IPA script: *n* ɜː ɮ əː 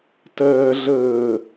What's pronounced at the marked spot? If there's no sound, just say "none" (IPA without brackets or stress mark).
t